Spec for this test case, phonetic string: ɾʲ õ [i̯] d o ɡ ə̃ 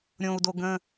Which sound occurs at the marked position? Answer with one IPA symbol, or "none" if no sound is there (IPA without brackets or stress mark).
u̯